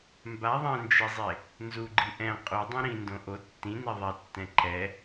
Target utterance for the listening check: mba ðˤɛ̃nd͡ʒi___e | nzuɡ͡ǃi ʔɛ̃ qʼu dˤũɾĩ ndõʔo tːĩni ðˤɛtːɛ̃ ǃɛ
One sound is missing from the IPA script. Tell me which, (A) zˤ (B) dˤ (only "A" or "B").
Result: A